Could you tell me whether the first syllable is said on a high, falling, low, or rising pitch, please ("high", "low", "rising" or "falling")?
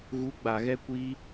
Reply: rising